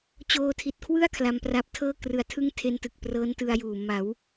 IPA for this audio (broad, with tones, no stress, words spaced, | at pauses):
t͡ɕoː˧tʰi˨˩t̚kʰwɯ˥˩a̯ kʰla˧mpra˦˥p̚tʰɤː˥˩ krɯ˨˩a̯tʰɯ˥˩ŋtʰe˧ntɯ˨˩k̚ prɤː˦˥ntɯ˧a̯juː˨˩ ma˩˦w